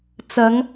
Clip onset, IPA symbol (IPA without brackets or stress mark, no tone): t͡s